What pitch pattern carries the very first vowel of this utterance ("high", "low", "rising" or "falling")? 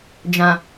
low